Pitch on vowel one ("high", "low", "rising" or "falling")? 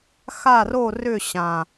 falling